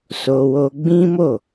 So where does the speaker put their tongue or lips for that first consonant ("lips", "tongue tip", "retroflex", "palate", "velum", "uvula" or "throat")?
tongue tip